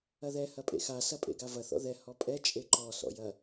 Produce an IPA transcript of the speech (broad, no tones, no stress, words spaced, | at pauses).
ɐðɛ hɐpʼḛxa sɐpʼḛɡavɐ θɔ̰ðɛ hɔpʼɛ t͡ʃʼeǃɔ sɔ̰jɐ